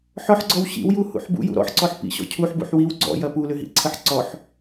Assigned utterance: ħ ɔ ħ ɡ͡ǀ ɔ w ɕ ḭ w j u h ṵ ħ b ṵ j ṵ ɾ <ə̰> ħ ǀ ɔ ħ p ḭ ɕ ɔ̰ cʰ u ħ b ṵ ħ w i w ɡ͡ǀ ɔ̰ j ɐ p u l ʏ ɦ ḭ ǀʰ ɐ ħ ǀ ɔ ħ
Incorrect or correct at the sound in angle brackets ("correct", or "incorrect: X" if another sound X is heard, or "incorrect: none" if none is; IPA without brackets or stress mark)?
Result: incorrect: ɔ̰